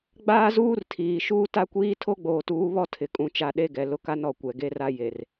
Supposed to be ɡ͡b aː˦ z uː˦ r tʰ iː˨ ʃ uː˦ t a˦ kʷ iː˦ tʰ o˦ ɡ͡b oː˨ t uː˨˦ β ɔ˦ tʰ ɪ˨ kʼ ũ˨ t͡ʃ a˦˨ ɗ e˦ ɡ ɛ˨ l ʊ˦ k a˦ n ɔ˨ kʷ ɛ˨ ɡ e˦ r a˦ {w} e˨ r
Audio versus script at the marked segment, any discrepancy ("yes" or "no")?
yes